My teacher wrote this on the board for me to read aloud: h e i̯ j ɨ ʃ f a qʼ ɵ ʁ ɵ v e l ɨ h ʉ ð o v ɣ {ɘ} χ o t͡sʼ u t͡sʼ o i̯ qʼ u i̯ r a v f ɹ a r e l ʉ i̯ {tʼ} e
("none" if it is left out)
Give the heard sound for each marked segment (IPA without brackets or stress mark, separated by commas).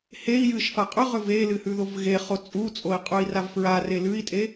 e, tʼ